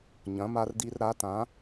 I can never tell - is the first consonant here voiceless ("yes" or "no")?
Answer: no